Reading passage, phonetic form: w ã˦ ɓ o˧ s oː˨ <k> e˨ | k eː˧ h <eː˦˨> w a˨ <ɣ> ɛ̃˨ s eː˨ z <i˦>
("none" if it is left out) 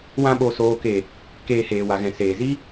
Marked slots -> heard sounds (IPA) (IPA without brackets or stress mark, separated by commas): k, eː˨, ɣ, i˦